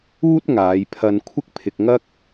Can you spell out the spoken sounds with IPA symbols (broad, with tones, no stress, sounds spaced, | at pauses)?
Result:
uː˥ t̚ ŋ aː˨˧ j pʰ ɐ˧ n kʷʰ ɪ˥ k̚ pʰ ɪ˧ k̚ ŋ ɐ˥ k̚